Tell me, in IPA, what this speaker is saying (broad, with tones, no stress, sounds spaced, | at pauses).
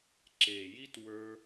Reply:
ǁ e˨ j i˦ t w ə˞˦